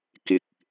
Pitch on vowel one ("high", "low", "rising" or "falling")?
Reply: low